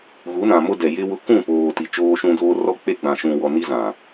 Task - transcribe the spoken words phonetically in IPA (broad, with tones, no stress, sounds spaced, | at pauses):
ɣ u˨˦ n ã˨ m ʊ˦ d ɛ˨ j ɪ˦ w ʊ˦ k ũ˦˨ p oː˨ t i˨ t͡ʃ oː˦ ʃ ũ˦ d oː˦ r ɔ˦ k͡p e˦ ɡ͡b ã˨ ʃ ũ˨ w ɔ˨ n i˦ z ã˨